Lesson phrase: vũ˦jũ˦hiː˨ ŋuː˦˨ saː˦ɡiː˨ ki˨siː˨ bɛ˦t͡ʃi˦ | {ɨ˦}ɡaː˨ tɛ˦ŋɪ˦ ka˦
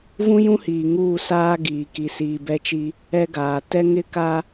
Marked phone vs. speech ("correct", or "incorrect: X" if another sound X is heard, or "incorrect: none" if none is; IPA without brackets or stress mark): incorrect: ɛ˦